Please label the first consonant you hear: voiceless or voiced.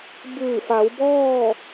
voiced